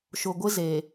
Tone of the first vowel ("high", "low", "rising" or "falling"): low